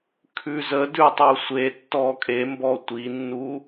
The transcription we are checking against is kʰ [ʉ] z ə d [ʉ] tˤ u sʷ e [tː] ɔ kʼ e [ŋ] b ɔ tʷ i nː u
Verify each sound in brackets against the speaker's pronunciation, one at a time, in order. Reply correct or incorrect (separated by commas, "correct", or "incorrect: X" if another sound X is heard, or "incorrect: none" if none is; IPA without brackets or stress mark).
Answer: correct, correct, correct, incorrect: m